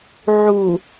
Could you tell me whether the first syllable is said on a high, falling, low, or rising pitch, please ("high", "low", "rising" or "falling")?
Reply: low